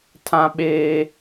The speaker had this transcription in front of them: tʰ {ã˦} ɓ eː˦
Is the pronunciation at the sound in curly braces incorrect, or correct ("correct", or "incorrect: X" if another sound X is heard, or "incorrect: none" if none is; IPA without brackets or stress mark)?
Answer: correct